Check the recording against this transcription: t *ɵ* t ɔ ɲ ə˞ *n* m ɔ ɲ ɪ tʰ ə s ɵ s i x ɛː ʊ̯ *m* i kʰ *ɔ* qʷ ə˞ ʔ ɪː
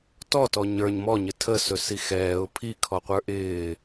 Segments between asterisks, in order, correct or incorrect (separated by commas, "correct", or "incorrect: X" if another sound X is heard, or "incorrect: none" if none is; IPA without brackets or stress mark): incorrect: ɔ, incorrect: ɲ, incorrect: pʰ, correct